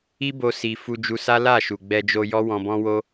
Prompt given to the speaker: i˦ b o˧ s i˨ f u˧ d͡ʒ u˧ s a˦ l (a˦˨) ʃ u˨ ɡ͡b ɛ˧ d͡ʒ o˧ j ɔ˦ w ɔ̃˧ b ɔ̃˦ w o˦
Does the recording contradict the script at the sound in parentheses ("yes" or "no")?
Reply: no